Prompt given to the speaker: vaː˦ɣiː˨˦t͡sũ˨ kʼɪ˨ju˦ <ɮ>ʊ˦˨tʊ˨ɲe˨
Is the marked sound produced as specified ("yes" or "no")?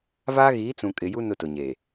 no